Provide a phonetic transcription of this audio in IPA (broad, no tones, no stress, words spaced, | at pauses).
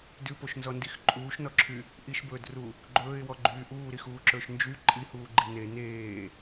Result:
dʉpoʃnzɔndix ǃʼuːʃnɔǁʰy | ʔiʃbɵːdru | ɡ͡ǃɵːɪ̯wɔɡ͡ǃyː ʔuːɾixuːǁɵːʃ nd͡ʒy ǃʼihuːɡ͡ǃi ne neː